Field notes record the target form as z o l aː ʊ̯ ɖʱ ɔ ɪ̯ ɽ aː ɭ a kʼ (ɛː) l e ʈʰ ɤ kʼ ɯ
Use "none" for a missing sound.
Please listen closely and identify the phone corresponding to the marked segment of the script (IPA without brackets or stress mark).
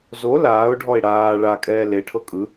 ɛː